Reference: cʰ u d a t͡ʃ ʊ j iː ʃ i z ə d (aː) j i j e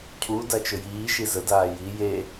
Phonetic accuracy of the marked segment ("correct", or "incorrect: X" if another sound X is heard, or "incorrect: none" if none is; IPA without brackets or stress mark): correct